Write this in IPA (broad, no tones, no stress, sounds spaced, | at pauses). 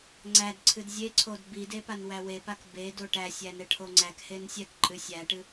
ŋ͡ǀ æ d ǀʰ ɨ d zʲ e ǀʰ o d b i d e p a n w æ w e p a k b e d o ʈ æ sʲ æ n ɛ ʈʰ o ŋ͡ǀ æ k h e n sʲ ɛ k ǃʼ ɨ sʲ æ ʈ ɨ